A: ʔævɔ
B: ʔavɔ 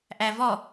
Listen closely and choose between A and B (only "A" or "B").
A